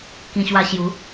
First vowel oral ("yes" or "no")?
no